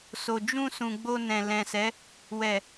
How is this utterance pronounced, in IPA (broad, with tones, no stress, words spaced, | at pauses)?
so˨d͡ʒũ˧sũ˨ ɡ͡bo˧nɛ̃˨lɛ̃˨sɛ˨˦ | wɛ˨